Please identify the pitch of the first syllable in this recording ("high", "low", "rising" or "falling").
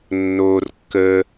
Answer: high